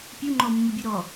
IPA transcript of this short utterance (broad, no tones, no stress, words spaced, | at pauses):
pʲu ŋ͡ǃɔmːubʲu ɾɔ